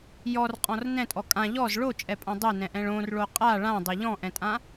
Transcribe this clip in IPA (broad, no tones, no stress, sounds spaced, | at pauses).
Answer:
j ɔ r qʼ ɔ̃ r n ɛ̃ tʼ ɔ kʼ ã ʎ ɔ z ɭ o t͡ʃʼ ɛ pʼ ã dˤ ɛ n ɛ̃ ʔ ɛ̃ ɭ õ r ɭ o qʼ a ɭ ã dˤ ɛ ʎ ɔ̃ ʔ ɛ̃ tʼ ã